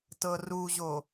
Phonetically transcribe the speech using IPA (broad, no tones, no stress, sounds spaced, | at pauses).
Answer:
t ɤ r u ʑ o